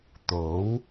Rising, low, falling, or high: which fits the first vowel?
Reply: rising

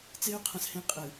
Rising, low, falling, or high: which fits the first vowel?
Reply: high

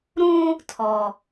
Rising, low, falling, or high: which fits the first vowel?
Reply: high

